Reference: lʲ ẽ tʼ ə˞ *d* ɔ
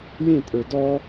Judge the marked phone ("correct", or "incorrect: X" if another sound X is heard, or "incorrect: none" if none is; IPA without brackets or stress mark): correct